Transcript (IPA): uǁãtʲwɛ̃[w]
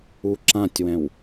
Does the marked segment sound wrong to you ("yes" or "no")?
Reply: no